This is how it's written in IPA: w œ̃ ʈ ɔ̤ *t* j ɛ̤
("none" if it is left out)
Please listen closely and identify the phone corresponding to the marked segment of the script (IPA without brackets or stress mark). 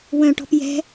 p